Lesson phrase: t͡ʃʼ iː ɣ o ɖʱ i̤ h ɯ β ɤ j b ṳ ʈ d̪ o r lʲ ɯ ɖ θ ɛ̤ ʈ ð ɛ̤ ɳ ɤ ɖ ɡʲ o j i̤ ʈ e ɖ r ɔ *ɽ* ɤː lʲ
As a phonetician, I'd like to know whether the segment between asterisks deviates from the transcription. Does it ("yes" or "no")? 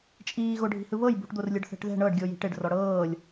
no